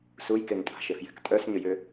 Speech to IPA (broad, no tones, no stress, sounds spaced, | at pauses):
s u j k e ŋ tʼ a̤ ʃ e f j ɛ̤ k tʼ œ s ɲ ʏ j ʏ